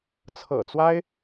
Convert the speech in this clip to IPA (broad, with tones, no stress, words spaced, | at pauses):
t͡sʰɤ̰˨˩t͡swa˥ɪ̯